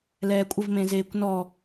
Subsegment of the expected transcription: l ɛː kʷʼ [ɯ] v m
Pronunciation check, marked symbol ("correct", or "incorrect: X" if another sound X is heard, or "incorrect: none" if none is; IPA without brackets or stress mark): incorrect: ə